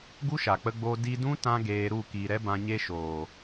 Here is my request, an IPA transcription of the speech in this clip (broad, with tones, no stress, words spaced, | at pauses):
ɡu˦ʃa˨k͡pə˧ɡ͡boː˧ di˧dũ˦ tã˦ɡeː˧ɾu˦˨ kiː˨ɾɛ˦ bã˧ɲe˦ ʃoː˨